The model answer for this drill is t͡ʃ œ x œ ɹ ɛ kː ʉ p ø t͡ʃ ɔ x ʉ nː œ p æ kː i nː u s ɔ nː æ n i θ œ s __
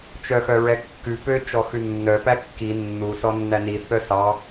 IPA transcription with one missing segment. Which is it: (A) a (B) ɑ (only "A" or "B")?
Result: B